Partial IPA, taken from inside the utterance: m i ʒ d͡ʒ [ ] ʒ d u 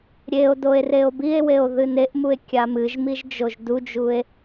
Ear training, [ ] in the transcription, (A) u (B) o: B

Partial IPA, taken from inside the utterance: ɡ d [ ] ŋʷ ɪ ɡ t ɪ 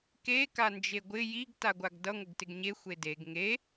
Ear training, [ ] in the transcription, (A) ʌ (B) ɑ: A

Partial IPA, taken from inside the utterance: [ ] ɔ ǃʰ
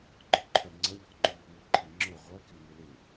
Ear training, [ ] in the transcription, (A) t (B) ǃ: B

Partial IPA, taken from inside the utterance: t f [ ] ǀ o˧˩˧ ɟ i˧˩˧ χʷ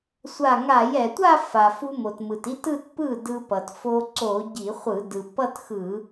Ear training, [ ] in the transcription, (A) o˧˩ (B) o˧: B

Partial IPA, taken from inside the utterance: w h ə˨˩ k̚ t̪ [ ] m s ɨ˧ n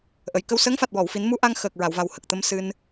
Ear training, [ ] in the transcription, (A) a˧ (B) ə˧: B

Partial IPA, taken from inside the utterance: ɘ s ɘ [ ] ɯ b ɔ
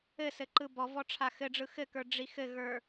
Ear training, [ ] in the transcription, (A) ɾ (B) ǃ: B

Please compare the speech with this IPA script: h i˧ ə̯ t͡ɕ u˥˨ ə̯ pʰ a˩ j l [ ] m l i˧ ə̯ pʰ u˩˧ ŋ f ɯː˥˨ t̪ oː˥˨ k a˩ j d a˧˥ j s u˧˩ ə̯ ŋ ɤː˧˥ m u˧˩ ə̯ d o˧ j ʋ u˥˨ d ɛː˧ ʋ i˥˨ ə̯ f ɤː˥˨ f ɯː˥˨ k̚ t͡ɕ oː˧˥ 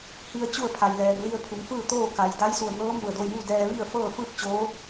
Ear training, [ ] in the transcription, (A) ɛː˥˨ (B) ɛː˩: B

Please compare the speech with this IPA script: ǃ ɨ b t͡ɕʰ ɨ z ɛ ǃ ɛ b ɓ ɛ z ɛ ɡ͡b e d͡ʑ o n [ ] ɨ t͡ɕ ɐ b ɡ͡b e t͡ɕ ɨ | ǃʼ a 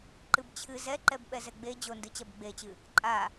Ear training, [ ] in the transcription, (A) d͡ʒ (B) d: B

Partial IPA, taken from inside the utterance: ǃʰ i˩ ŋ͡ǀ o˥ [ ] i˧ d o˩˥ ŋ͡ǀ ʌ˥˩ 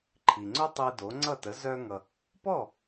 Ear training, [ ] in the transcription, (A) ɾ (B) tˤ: B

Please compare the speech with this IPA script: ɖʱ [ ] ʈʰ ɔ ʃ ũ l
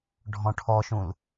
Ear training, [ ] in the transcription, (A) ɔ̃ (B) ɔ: A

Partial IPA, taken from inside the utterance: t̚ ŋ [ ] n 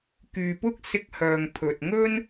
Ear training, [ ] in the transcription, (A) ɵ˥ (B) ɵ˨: A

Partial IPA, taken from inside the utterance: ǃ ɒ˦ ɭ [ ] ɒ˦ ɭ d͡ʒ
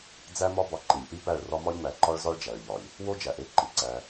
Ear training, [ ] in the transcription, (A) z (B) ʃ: A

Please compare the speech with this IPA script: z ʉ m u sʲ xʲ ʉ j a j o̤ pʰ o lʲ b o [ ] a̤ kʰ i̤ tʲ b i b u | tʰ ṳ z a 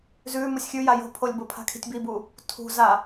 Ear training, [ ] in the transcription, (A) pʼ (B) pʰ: B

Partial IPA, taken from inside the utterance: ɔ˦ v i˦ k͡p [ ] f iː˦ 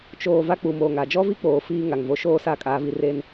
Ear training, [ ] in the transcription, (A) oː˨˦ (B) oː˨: A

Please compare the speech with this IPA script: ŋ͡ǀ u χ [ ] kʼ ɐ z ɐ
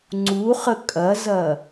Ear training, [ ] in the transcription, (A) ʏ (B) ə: B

